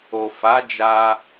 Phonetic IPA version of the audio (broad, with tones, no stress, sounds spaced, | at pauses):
o˨ f a˨˦ d͡ʒ a˧